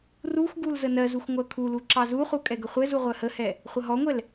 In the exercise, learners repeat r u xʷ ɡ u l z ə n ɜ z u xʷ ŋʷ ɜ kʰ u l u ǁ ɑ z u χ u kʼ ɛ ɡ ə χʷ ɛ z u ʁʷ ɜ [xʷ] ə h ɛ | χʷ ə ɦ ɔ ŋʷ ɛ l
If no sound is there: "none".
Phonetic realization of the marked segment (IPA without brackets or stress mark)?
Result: h